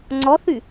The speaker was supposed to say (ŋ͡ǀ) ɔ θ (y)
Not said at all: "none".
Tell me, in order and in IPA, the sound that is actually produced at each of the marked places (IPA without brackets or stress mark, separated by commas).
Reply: ŋ͡ǀ, y